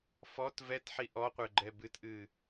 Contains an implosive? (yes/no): no